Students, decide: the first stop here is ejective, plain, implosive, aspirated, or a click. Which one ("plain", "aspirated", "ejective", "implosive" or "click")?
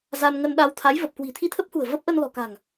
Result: implosive